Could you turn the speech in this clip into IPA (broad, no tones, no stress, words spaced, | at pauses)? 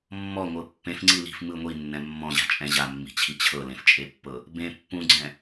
mːɔŋʷɤ pːẽfŋ͡ǀi li̤f mɯ ŋʷinːɛ̃ mːɔ̃ʑa̤t͡ʃʼɛ̃ ʑamːi̤t͡ɕʰi t͡ɕʰɤlẽft͡ʃʼepːɤ | bẽ pːũɡ͡ǀɛ̃